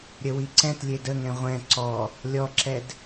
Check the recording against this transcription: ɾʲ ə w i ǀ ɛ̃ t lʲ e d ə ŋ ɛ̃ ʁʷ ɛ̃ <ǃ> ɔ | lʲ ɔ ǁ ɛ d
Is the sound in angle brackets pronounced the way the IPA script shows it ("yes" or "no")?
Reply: no